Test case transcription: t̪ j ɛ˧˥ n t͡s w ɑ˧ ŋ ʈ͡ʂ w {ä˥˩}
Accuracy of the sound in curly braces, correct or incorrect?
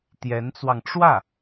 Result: correct